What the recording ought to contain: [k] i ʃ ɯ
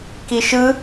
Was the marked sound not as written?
no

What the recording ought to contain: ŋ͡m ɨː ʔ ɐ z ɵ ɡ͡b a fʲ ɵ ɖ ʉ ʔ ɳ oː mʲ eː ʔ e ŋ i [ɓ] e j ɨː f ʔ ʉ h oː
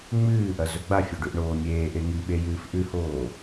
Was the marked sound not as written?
no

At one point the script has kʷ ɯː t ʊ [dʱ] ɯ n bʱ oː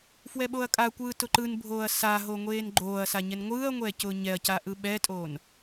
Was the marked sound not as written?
yes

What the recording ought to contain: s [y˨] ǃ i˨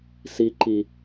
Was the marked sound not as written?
yes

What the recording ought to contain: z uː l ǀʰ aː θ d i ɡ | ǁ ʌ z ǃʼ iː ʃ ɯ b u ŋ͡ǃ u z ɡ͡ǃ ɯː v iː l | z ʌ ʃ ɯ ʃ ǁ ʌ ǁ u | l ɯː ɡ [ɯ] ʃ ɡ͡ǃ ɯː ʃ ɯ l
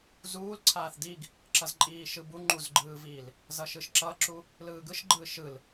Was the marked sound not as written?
no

